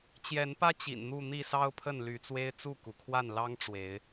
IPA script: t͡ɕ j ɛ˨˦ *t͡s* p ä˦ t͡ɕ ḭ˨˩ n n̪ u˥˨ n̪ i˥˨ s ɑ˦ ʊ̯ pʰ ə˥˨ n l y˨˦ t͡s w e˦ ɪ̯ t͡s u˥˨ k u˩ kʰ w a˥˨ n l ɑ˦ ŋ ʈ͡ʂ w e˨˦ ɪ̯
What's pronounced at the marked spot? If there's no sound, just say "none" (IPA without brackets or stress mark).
n